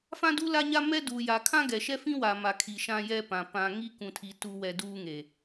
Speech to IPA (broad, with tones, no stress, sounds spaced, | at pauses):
f ã˦ d u˦ l a˦ ɲ a˦ m ɛ˦ d u˨ j a˨ kʰ ã˦ ɡ ɛ˨ ʃ ɛ˦ f ĩ˦ w a˨ m a˨ kʰ i˨ ʃ ã˦ j ɛ˦ p ã˨ p ã˨ ŋ i˦ k ũ˨ tʰ i˨ t u˨ w ɛ˨ d uː˦ ŋ e˨